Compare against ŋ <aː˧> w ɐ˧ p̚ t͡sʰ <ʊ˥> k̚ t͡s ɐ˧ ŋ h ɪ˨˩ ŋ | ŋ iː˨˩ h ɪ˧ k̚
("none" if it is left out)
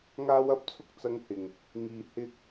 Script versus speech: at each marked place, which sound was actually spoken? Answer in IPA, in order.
aː˧, ʊ˥

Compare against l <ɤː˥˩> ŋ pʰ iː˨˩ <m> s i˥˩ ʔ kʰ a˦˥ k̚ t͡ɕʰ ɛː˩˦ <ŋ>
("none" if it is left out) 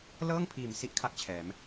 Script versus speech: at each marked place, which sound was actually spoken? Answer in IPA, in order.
ɤː˥˩, m, m

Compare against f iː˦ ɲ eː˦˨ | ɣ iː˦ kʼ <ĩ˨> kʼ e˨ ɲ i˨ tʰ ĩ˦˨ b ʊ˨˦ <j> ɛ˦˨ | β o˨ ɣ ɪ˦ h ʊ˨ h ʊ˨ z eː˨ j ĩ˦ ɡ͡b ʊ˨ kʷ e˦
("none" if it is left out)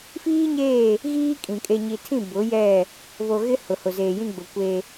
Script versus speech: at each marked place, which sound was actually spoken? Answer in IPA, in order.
ĩ˨, j

